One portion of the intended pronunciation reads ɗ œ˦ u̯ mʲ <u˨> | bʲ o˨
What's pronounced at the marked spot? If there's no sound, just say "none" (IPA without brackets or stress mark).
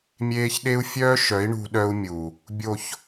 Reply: u˨